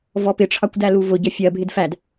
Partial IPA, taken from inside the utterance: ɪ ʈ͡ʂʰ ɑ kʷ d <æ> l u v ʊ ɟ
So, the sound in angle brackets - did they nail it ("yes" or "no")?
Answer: yes